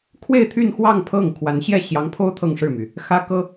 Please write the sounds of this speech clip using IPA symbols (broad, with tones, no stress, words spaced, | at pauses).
kʰwe˥˧ɪ̯t̪ʰy˥˧nxwɑ˥˧ŋ pʰɤ˥˩ŋkʰwa˧˥n ɕjɛ˥˩ ɕjɑ˧˥ŋpʰo˥ʊ̯ t̪ʰɤ˥˧ŋʂɻ̩˥˩my˩ | xä˥kɤ˥